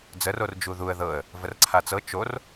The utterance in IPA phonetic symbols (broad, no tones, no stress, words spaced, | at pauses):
d͡zəror d͡ʒuðuə̯ ðɤə̯ | vərǀʰat͡sɤ t͡ʃor